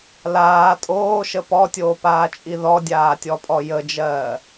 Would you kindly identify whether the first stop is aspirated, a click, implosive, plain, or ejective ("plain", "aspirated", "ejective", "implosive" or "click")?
ejective